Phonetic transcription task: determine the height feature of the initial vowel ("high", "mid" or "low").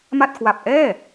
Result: low